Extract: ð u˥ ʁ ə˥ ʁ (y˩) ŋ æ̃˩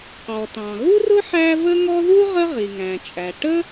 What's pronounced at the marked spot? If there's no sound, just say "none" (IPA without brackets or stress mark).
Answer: i˩